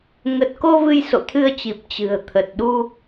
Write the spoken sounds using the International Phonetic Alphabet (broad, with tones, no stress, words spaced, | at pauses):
ŋə˨˩t̚ko˧ vɨ˧jso̰˧˨t̪ʰɨ˧ə̯t͡ɕi˨˩p̚ t͡ɕɨ̤˨˩ə̯t̪ʰə˨˩t̚ɗu˧